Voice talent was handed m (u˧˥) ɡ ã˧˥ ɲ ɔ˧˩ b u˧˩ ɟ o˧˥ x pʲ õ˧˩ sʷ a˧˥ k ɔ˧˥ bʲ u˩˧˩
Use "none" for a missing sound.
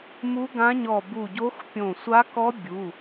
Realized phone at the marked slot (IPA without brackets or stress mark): u˧˥